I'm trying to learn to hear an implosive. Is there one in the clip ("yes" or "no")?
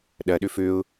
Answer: yes